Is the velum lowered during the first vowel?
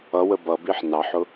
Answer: no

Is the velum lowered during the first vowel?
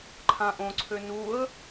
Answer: yes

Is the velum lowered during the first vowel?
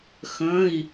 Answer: yes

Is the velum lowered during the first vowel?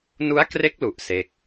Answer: no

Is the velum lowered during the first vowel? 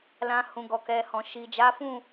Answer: yes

